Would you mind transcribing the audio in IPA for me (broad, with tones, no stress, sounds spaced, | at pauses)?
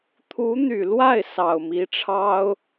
t̪ʰ u˧˥ n̪ y˨˩ l w a˥˩ ɪ̯ s ɑ˨˩ ʊ̯ m i˧˥ ʈ͡ʂʰ ɑ˥ ʊ̯